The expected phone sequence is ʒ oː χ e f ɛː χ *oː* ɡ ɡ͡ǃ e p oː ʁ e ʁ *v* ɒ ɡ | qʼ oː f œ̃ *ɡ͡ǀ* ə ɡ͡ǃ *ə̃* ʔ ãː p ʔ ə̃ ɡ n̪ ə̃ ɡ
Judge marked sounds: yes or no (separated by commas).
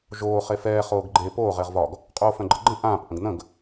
yes, yes, no, yes